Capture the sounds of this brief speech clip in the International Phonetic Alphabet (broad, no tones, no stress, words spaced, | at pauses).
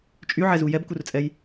t͡ʃʼyʕɛzu jɛbkurt͡sʼɛj